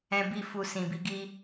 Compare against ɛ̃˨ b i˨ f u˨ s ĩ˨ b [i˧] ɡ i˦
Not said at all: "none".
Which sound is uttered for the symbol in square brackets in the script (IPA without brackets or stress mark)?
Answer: i˧